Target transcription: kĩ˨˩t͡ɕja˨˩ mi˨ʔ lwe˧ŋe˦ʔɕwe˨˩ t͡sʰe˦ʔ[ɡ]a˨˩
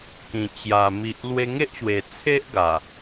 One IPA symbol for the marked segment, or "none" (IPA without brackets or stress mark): ɡ